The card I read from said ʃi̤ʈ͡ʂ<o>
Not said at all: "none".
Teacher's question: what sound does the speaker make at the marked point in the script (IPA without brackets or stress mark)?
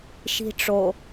o